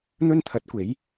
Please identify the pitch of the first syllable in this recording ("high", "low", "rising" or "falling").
high